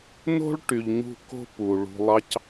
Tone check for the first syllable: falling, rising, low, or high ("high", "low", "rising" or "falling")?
high